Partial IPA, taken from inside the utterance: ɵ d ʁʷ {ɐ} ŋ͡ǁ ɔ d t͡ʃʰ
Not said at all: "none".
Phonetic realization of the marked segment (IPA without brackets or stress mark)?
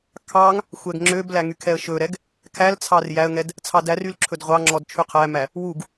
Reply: ɑ